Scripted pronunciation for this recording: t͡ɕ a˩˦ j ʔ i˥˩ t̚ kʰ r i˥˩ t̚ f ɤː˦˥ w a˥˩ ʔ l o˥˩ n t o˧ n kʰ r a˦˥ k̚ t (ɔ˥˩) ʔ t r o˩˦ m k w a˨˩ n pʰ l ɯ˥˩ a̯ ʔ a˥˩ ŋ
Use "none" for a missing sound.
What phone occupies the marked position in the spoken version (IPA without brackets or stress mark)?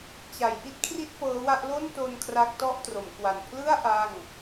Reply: ɔ˥˩